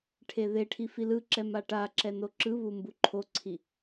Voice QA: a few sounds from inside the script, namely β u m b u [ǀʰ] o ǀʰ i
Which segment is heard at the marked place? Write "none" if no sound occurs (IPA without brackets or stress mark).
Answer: ǃʰ